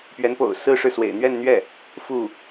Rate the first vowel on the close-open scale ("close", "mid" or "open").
mid